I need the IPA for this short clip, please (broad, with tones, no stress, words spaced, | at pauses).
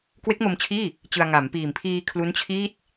kwe˦˥k̚mo˧mt͡ɕʰiː˥˩ | t͡ɕɯ˧a̯ ŋa˩˦mpiː˨˩mpʰiː˧ kʰlu˦˥nt͡ɕʰiː˥˩t̚